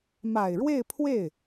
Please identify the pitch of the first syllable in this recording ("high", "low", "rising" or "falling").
low